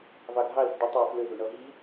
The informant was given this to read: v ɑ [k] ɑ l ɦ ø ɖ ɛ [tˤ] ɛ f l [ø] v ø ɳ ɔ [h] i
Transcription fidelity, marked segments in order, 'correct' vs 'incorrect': incorrect: ɡʱ, correct, correct, incorrect: ɦ

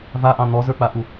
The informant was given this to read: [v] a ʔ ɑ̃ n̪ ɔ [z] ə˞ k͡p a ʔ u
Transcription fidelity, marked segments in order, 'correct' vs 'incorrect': correct, correct

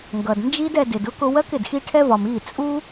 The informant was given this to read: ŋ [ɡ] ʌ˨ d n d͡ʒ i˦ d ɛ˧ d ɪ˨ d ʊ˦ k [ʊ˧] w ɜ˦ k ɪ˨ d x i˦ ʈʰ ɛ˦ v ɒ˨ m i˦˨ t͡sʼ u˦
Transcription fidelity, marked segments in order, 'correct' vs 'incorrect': correct, correct

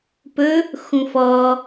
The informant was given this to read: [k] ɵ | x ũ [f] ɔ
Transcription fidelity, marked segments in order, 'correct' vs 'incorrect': incorrect: p, correct

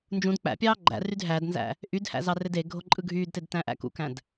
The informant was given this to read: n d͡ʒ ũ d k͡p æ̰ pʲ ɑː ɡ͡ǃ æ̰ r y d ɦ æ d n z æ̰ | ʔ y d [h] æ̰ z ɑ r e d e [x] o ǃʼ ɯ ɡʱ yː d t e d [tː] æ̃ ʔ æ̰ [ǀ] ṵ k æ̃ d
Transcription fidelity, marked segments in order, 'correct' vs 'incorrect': correct, incorrect: ɡʱ, incorrect: t, incorrect: k

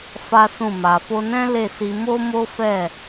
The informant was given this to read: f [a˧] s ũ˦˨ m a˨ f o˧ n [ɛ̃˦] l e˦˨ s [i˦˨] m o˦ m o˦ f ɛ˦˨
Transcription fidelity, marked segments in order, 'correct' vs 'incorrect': incorrect: a˦, correct, incorrect: i˧

